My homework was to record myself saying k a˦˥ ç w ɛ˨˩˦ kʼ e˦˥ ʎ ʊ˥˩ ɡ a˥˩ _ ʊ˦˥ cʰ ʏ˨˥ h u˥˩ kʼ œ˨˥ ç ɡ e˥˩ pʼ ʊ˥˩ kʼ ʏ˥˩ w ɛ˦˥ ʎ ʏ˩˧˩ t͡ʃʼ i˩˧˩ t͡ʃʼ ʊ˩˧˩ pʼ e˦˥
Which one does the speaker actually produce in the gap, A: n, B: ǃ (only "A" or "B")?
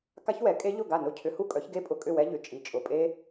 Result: A